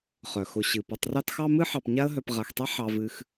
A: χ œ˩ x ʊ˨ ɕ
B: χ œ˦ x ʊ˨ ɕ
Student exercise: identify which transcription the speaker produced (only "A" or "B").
A